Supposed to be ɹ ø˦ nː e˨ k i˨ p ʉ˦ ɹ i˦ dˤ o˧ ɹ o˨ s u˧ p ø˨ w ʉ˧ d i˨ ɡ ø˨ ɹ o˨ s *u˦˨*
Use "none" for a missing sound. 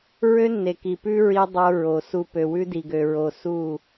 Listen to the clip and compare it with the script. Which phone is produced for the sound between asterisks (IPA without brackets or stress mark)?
u˦˨